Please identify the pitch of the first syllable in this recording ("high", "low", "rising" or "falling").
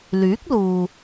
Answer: rising